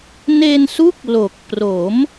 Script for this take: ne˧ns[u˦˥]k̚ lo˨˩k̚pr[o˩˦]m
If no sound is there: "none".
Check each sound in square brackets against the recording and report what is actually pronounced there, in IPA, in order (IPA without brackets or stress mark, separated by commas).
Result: u˦˥, o˩˦